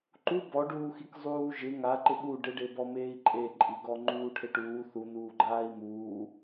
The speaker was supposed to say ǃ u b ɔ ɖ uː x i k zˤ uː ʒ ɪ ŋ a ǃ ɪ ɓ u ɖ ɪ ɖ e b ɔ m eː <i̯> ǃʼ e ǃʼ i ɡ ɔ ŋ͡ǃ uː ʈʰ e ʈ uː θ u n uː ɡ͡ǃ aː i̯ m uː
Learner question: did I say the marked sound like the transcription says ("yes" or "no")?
yes